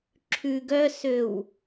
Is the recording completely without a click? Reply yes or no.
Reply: no